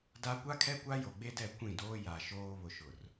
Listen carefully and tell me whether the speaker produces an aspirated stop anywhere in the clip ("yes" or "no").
yes